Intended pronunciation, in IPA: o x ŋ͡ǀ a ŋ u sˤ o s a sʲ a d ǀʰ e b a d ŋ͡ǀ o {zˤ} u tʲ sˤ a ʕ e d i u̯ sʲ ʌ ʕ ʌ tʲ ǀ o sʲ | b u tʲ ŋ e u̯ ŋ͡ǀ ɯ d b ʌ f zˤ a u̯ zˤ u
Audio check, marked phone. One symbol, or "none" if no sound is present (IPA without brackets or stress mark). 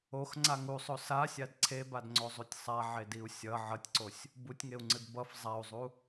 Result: zˤ